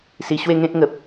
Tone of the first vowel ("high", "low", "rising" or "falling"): low